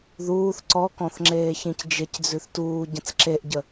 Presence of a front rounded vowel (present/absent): absent